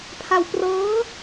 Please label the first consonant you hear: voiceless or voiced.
voiceless